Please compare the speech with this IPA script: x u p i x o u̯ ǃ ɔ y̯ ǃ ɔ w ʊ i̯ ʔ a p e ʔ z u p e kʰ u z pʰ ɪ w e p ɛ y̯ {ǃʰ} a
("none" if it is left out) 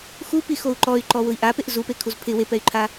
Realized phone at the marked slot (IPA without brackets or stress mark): ǃʰ